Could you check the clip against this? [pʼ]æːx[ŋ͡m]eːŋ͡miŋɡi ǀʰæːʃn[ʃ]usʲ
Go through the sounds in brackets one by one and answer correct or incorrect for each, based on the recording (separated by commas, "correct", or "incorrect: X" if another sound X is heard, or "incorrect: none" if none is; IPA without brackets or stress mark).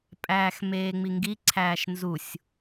correct, incorrect: m, incorrect: z